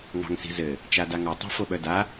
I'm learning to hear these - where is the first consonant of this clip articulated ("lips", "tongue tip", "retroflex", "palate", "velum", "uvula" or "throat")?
velum